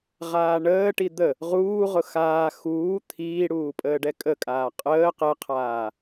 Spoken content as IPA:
ʁ aː ɳ əː ʈ i d̪ ə | ʁ uː ʁ ʊ x aː x uː t̪ʰ iː ɽ uː pʼ əː ɖ ɛ kʼ ə kʼ aː qʼ əː q ɛ qʰ aː

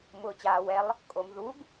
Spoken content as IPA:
m ʊː t͡ɕ aː w ɛ lˠ | kʼ o m ð u ɡ

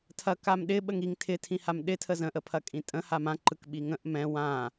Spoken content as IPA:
tʰ ɐ k a m ɗ ɪ ɓ ə ŋ i ŋ tʰ ɪ tʰ ĩ h a m ɗ ɪ tʰ ə z ə̃ ʔ ə pʰ ɐ kʼ ĩ tʼ ə̃ h a m ã ǃ ɯ k ɓ i ŋ ə̃ ʔ m ɛ̃ w ã

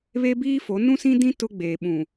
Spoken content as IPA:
β e˦ b iː˦ f o˨˦ n ũ˦ s ĩ˦ d ĩ˦ t ʊ˦ ɡ͡b eː˨ ɓ ũ˨

